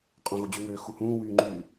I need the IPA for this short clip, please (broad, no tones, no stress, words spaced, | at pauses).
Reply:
qʼõɣod͡ʑyŋøː xuhũːwyːŋ͡ǃyː